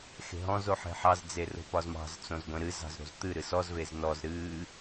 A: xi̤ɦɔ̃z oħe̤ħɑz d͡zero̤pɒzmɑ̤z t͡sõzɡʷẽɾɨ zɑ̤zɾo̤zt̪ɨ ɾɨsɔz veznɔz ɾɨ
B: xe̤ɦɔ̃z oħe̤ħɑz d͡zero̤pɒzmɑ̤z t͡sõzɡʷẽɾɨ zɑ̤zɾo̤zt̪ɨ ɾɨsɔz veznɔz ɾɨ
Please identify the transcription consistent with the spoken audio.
B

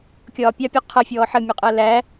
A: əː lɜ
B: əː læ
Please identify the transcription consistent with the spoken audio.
B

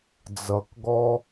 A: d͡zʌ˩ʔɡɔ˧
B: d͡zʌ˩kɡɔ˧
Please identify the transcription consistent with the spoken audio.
B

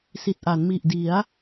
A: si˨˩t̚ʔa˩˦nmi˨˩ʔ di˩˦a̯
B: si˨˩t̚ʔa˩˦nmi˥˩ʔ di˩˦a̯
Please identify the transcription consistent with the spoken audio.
A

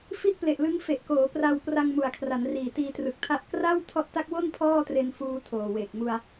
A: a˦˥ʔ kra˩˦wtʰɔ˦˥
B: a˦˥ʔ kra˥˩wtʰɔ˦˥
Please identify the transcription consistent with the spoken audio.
B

